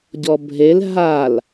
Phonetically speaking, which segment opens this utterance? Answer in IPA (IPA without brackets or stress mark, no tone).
ɟ